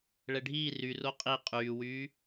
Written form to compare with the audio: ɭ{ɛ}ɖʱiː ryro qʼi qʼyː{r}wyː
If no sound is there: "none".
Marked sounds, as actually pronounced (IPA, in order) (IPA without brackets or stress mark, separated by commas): ɛ, none